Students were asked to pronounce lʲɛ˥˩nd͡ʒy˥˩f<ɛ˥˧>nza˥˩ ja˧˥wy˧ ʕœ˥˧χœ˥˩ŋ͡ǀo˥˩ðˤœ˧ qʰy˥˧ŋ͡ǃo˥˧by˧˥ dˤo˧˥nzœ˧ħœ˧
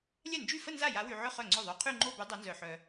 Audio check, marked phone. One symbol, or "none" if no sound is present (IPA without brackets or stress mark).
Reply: ə˥˧